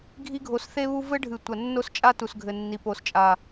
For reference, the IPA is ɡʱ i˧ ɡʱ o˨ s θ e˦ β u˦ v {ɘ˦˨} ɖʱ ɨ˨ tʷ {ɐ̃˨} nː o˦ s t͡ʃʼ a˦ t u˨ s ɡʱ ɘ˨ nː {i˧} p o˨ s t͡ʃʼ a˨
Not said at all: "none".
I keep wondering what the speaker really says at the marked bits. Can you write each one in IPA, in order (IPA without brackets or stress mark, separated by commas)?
ɘ˦, ɐ˨, i˨